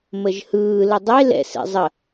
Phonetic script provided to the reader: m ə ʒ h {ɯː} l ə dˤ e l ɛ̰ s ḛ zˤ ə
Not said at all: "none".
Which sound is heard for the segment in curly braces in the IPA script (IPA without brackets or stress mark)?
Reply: ɯː